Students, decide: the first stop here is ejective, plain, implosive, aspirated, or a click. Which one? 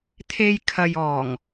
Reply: aspirated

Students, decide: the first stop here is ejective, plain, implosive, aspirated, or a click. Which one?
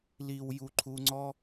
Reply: click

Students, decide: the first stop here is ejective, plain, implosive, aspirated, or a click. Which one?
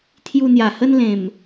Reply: aspirated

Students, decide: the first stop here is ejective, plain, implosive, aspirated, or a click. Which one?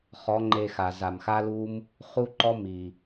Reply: click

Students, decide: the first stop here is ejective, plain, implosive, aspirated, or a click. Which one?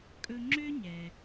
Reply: ejective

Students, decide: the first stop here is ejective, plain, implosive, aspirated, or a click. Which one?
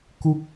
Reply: plain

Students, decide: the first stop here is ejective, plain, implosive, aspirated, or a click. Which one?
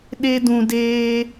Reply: implosive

